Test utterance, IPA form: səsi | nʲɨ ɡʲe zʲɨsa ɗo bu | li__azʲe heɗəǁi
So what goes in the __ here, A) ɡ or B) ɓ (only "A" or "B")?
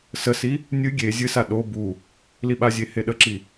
B